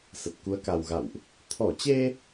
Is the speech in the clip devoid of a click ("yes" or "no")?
yes